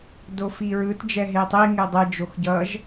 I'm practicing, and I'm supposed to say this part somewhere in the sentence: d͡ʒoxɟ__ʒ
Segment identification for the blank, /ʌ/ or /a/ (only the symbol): ʌ